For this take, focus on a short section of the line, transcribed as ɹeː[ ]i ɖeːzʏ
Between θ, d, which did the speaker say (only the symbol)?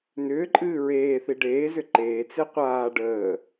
θ